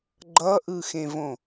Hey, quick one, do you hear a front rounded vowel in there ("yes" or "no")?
no